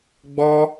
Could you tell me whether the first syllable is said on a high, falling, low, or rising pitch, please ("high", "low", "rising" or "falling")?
high